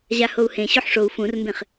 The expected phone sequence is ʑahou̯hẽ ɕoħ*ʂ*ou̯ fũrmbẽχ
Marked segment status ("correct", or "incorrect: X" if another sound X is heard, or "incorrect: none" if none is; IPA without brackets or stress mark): correct